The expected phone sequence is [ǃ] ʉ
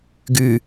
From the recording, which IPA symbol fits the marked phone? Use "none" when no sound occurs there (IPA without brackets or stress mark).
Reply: ɡ